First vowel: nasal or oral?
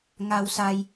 oral